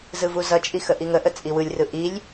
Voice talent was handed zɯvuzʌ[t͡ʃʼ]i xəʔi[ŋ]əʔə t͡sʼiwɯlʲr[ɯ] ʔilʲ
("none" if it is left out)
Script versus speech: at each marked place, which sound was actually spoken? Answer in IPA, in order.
t͡ʃʼ, ŋ, ɯ

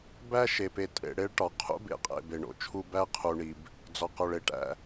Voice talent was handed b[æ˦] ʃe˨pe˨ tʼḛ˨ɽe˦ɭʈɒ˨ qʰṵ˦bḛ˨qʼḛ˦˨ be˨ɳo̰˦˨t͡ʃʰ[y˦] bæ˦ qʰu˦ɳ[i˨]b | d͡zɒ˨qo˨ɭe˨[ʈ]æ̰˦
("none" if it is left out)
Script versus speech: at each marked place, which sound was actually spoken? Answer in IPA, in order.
æ˦, u˦, i˦, ʈ

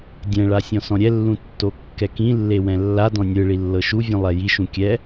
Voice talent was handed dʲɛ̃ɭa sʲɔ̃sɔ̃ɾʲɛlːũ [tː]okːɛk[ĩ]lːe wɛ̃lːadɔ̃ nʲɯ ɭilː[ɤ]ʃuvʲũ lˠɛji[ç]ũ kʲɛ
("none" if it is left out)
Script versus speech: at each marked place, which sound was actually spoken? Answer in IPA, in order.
tː, ĩ, ɤ, ʃ

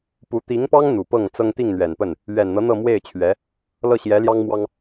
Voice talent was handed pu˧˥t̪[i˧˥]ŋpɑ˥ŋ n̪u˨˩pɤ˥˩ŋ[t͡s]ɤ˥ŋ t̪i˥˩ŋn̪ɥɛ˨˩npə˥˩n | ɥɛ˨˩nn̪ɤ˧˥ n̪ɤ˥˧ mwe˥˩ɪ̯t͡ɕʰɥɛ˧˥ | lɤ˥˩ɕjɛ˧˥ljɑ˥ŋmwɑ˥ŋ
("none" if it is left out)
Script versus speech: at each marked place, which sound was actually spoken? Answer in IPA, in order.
i˧˥, t͡s

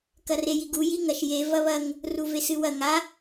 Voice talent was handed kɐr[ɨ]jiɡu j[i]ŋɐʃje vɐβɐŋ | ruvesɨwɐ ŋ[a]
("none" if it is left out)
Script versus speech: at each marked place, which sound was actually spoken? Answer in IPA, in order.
e, i, a

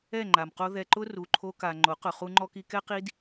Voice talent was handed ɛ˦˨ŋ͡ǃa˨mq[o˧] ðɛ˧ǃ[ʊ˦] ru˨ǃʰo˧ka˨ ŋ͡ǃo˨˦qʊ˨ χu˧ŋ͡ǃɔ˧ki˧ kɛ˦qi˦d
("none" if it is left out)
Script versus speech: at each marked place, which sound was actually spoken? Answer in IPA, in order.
o˧, ʊ˦

